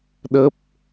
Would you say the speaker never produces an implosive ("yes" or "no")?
no